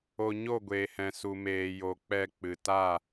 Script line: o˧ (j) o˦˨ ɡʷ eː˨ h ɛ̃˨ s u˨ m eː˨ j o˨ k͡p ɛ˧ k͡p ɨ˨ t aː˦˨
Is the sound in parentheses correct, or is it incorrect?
incorrect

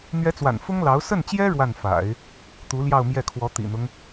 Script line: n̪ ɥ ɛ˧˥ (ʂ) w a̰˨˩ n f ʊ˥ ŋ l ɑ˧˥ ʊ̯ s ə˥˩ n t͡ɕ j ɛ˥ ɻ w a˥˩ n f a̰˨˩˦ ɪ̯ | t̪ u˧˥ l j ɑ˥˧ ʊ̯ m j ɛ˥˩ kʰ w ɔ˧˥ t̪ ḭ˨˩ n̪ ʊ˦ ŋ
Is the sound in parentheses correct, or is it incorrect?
incorrect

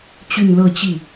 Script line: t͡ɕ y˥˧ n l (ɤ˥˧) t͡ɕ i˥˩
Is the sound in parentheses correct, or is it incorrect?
correct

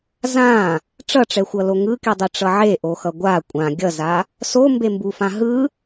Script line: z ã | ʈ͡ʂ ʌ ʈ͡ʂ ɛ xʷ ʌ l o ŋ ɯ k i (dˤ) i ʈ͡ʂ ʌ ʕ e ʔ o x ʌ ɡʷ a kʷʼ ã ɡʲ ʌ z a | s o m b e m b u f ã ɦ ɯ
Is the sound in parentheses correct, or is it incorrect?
correct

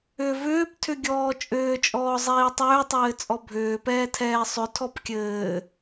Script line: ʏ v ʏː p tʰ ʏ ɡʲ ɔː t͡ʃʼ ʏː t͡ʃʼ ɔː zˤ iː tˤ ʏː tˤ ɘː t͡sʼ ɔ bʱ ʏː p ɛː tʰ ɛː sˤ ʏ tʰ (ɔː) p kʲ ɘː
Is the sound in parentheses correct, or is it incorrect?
incorrect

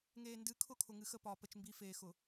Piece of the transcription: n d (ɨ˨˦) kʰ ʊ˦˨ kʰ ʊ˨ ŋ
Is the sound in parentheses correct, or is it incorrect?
correct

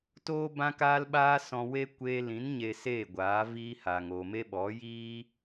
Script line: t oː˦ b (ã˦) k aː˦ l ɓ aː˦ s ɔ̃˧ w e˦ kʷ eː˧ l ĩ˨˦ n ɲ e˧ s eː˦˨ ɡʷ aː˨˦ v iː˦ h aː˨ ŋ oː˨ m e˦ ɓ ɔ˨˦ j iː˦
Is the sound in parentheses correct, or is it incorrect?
correct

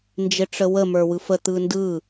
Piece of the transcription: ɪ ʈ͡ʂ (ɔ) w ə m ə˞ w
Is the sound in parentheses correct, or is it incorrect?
incorrect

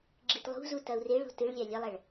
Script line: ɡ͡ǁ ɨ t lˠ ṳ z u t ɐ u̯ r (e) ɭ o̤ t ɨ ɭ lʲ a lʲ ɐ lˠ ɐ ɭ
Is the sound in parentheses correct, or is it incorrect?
correct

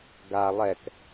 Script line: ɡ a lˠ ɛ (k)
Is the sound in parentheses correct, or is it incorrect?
correct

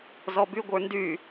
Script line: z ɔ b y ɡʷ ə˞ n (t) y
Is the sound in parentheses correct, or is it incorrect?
incorrect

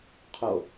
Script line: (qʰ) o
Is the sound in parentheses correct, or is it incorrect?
correct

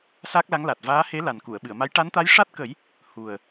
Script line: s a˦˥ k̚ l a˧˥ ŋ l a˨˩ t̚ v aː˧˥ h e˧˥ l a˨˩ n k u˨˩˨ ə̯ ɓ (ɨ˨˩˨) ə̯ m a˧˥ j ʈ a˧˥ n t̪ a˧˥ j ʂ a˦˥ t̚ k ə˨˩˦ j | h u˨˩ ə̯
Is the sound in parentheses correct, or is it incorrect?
correct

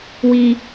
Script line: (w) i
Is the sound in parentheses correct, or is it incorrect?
correct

